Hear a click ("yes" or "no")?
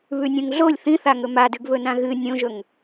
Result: no